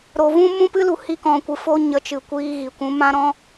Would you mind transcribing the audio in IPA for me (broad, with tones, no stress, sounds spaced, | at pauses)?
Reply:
ɾ o˨ v ũ˦ m ũ˦ p ɨ˦ l u˨ h i˧ k ɔ̃˨ kʷ ɨ˨ f o˦ ɲ ə˨˦ t͡ʃ ɨ˨ kʷ iː˧ ɣ i˨ kʷ ũ˨˦ m ã˦ ɾ ɔ̃˦